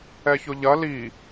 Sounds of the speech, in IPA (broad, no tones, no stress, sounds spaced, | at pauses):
ɛ ç ʊ ʎ ɐ l i